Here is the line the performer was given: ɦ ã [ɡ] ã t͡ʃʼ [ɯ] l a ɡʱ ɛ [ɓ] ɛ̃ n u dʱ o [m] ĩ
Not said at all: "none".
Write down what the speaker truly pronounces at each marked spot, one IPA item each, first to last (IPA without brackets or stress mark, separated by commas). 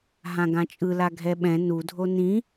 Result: ɡ, ɯ, ɓ, n